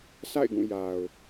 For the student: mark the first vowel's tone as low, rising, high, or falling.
falling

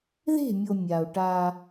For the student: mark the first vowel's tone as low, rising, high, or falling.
falling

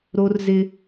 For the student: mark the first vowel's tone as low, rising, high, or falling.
high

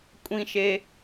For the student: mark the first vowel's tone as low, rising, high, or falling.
high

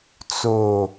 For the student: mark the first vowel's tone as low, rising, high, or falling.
low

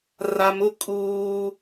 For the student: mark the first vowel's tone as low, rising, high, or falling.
low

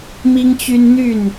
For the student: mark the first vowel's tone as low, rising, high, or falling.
high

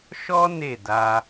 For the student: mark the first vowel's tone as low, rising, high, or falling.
high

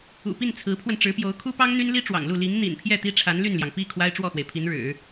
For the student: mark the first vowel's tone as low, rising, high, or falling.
low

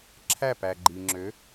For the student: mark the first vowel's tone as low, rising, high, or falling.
falling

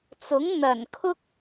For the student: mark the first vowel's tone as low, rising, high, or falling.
rising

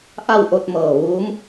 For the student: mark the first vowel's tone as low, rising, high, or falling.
falling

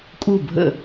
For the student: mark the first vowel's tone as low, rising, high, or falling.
falling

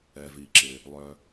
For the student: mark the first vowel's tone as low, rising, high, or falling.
low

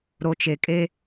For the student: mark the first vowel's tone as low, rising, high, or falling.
low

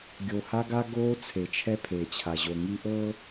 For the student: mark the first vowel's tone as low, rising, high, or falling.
low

